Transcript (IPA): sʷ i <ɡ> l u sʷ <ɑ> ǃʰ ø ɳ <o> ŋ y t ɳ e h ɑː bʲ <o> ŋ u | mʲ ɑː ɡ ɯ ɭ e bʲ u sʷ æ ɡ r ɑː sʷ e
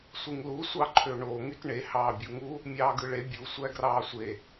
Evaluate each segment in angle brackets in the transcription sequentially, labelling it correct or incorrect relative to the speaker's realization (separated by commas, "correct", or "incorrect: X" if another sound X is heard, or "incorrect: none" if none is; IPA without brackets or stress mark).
incorrect: ŋ, correct, correct, incorrect: u